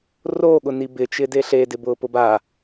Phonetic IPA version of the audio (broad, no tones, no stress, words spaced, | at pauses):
roɠʊni bɪt͡ʃɪde ɬedɪbʊːpʊ ba